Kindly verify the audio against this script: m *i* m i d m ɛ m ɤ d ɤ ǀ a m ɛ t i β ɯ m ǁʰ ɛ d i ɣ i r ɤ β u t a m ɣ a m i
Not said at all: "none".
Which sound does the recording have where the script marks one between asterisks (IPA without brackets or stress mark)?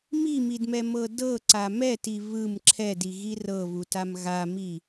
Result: i